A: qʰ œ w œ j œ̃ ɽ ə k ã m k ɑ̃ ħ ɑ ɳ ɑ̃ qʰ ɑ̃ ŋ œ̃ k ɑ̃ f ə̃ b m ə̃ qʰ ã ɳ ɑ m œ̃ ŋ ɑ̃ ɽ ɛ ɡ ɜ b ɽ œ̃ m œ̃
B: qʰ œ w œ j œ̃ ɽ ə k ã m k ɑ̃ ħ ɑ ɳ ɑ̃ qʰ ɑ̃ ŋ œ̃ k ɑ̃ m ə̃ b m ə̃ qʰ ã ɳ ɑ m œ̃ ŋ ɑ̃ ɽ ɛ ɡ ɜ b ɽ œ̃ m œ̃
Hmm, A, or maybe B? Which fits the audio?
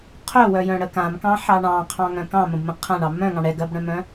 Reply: B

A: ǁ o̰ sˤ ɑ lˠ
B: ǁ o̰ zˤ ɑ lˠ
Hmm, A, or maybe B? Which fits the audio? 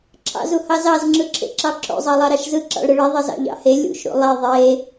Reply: B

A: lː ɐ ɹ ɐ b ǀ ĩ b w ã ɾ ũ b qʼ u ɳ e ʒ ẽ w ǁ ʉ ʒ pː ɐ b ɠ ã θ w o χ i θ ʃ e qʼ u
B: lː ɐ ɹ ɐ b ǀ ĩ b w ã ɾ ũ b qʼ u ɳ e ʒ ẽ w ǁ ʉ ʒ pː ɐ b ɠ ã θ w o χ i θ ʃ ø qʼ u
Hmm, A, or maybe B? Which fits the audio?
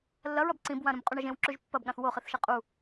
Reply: A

